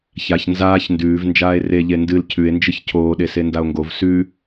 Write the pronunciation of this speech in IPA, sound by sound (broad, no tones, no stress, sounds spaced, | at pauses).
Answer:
ç a ç n z aː ç n d ʉː v n d͡ʒ aː e̯ r e ʎ e n d ɨ l cʰ ʉ e̯ n d͡ʒ ɨ ç cʰ oː ɗ e s e n d a o̯ ŋ ɡ o v s ʉ